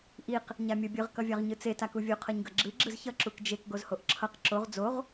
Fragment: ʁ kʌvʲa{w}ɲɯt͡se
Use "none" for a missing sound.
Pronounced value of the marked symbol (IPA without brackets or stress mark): ʁ